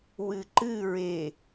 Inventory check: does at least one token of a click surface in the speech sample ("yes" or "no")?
yes